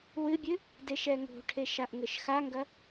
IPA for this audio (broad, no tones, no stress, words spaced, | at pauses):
wɨbʲɨ | deʃɛŋo̤ʈʰeʃ aʔŋɘʃxaŋɡɐ